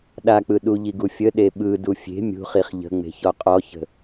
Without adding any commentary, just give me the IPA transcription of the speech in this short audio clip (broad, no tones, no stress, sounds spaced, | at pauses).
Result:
ɗ a k͡p ɯ ɗ u ʎ i ɡ u fʲ ə ɗ e ɓ ɯ d u fʲ e̤ mʲ ṳ χ i χ ʎ ə̤ ŋ͡m e̤ ç ɔ qʼ ɔ ç ə̤